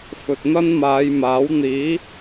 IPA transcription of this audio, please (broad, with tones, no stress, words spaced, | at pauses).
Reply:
fɵ˨t̚n̪ɐ˥nmaː˨˧j maː˨˥wn̪iː˨˥